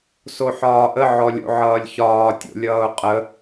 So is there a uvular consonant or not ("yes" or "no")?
yes